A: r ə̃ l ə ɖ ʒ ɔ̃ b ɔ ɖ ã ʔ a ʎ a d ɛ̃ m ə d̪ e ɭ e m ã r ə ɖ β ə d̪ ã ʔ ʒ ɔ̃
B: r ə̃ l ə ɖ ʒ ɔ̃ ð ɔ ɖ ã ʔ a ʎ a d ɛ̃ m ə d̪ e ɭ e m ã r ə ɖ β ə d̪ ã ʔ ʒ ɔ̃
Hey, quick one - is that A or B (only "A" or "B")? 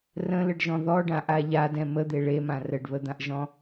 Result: B